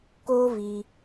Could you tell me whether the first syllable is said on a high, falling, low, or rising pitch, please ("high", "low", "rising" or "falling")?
high